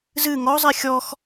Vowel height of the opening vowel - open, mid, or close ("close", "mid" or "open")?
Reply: close